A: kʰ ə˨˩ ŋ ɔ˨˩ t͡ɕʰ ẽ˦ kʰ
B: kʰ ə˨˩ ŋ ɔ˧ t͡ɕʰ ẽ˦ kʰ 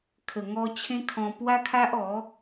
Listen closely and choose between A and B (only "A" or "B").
B